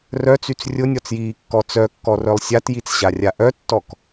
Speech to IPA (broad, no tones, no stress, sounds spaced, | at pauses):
r œ t͡s y t͡s rʲ ʊ nʲ ɔ t͡s j iː kː ɔ t͡s œ kː ɔ r œ lˠ sʲ a t j i t͡s ɕ a rʲ a ʔ œ tː ɔ k